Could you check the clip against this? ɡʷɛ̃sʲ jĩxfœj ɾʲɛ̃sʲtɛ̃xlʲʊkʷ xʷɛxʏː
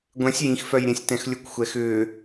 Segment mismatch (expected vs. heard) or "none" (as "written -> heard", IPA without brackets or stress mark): none